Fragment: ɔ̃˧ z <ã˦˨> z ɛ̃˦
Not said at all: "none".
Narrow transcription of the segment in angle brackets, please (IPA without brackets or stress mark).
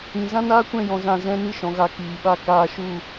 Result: ã˦˨